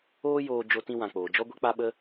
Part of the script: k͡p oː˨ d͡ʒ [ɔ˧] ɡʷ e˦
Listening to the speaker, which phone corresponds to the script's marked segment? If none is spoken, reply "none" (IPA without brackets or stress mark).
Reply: ɔ˦